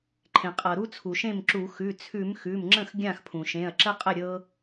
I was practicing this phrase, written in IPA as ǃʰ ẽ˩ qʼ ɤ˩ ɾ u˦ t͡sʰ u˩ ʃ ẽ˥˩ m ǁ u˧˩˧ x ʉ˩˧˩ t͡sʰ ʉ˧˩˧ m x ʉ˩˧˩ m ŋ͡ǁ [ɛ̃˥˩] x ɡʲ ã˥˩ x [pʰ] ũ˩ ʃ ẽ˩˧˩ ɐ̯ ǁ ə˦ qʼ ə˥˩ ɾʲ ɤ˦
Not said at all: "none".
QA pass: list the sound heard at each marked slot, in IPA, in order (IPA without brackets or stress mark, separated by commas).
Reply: ə̃˥˩, pʰ